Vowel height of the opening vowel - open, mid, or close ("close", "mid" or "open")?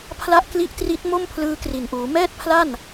open